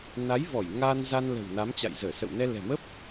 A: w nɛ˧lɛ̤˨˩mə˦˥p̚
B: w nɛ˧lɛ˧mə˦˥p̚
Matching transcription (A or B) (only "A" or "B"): A